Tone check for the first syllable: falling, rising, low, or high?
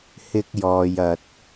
high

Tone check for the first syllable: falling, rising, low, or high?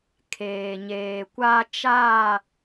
low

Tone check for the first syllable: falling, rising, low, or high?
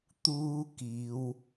high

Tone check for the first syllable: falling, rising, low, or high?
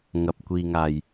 low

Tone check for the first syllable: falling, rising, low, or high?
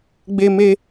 high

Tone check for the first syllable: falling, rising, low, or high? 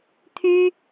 high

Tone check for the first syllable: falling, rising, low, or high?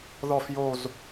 low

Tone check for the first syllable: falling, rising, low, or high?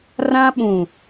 high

